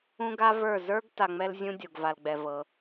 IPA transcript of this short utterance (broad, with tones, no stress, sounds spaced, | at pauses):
ũ˦ ɡ a˦ v ə˞˦˨ z ə˞˦ ɡ t a˨ ŋ͡m ɛ˦ l zʲ ũ˦ dʲ o˨ ɡ v a˨ l ɡ͡b ɛ˨ v ɤ˨˦